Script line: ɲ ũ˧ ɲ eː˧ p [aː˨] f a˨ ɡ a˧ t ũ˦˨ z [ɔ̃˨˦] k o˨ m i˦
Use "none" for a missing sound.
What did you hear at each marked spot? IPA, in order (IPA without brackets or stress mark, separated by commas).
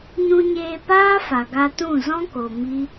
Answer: aː˦, ɔ̃˦